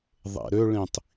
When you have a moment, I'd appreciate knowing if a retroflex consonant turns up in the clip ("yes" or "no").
yes